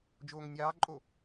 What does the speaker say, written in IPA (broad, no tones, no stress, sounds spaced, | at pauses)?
d͡ʒ oː ŋ nʲ ɑː ǃʼ o